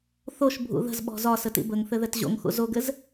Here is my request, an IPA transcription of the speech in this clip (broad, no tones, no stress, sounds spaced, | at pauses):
θ o ʃ bʱ ṵ ð ə̤ z ɓ ɔ̤ z ɒ s ə t ḭ b ə ŋ θ ɘ ð ɛ t ʑ o̰ ŋ x ṵ z o ɡ ɘ z